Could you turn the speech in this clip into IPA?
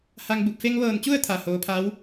h a˧ ŋ b u˧˩ p̚ f e˧ ŋ ʋ ɤː˧˩ n t͡ɕ u˥˨ ə̯ t̪ʰ a˩ h oː˩˧ pʰ a˧˥ w

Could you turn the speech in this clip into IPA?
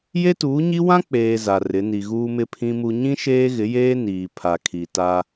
j e˦ t uː˨˦ ɲ i˦ w ã˦ k͡p eː˨ z a˨ r ɪ˨˦ n i˨ ɣ uː˨ m ɪ˨ pʰ ĩ˨ m u˨ ɲ ĩ˦ ʃ eː˦ ɣ ɪ˨˦ j eː˦ n iː˨ pʰ a˨ kʰ i˨ t a˦

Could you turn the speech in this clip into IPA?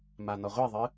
m a n ɔ ʁʷ i ðˤ ɨ

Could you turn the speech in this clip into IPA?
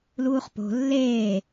l uː χ p o̤ lː eː

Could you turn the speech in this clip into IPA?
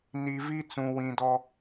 n i˨ v i˦ t͡s ũ˨ w ĩ˨ d ɔ˦

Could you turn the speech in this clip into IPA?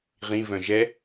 ʁ ĩ v œ̃ ʒ ɛ

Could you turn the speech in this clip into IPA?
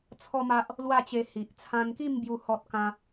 t͡sʰ ɔ˦ m a˦ ʔ | l w a˥˧ t͡ɕ e˧ h i˨ ʔ t͡sʰ ã˧ n k i˥˧ m b j u˥˧ h ɔ˦ t̚ k ã˦

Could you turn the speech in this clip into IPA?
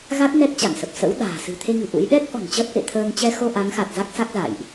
ɣ a˦˥ t̚ n ɛ˦˥ k̚ t͡ɕ a˧˩ ŋ s ə˨˩ p̚ s ə̰˧˥ w ɗ a̤ː˨˩ s ɨ̤˨˩ t̪ʰ e˧ ŋ ɨ̤˨˩ ʔ ṵ˧˥ j ɗ ɛ˦˥ k̚ ʔ ɔ̤˨˩ n t͡ɕ əː˦˥ t̚ ʔ ḛ˧˨ t̪ʰ əː˧ ŋ t͡ɕ ɛ˧ x o˧ ʔ a˨˦ ŋ x a˨˩ t̚ z a˦˥ k̚ s a˦˥ k̚ z a̰˧˨ j ʔ

